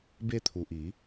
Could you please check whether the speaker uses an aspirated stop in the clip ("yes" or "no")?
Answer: yes